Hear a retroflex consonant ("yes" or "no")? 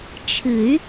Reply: no